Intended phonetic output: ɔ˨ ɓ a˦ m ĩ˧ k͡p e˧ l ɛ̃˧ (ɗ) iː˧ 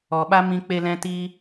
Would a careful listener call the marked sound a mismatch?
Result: yes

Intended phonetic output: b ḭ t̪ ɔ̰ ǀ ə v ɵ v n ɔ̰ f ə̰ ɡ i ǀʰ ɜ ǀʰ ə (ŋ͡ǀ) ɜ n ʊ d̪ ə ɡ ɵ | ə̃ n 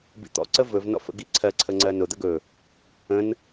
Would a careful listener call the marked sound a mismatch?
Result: no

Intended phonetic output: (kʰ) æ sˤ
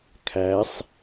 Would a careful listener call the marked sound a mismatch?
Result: no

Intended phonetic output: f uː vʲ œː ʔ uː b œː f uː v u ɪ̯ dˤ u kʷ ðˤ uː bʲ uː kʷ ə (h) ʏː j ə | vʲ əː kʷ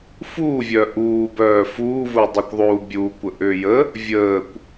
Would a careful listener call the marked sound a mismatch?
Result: yes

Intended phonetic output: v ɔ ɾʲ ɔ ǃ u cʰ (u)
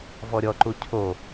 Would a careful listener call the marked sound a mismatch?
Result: yes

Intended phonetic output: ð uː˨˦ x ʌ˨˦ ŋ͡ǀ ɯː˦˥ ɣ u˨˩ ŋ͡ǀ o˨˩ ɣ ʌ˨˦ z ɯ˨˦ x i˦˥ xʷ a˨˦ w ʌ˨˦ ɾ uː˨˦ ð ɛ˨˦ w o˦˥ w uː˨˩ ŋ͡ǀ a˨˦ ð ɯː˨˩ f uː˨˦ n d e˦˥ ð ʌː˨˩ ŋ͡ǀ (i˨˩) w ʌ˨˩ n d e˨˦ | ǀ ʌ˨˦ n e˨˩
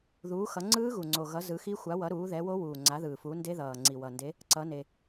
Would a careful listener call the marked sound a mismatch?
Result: no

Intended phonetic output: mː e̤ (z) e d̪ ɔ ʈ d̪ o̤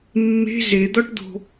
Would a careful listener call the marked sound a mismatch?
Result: no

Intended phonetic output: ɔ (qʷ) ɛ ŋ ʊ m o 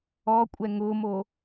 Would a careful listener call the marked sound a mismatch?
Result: yes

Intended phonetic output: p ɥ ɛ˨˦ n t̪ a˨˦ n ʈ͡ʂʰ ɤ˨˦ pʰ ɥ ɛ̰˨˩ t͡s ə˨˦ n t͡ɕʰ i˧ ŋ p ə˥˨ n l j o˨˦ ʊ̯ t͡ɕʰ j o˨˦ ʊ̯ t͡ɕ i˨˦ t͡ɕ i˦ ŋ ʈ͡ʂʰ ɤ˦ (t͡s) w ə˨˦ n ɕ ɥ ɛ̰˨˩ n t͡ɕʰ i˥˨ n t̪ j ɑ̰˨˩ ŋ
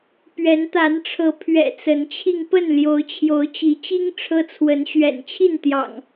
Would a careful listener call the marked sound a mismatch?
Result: yes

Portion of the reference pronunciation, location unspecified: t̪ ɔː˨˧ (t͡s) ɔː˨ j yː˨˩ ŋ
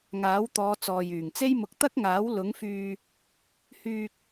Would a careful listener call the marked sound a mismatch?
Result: no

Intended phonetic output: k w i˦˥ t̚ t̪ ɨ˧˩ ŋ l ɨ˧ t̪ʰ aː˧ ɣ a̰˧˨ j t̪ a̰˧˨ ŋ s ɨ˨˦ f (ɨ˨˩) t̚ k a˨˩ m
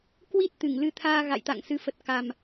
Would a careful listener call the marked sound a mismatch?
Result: yes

